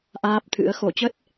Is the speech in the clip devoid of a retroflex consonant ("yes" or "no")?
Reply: yes